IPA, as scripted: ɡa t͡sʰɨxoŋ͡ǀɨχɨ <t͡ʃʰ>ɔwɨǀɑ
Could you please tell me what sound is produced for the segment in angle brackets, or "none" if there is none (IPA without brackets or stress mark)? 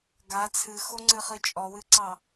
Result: t͡ʃʼ